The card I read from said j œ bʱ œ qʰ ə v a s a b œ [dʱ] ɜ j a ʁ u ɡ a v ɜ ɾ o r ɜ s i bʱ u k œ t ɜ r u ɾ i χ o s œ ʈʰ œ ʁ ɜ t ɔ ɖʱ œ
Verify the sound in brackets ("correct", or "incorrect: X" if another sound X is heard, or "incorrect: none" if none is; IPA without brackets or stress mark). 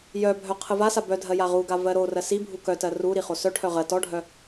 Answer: correct